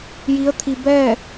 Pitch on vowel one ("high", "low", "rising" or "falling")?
rising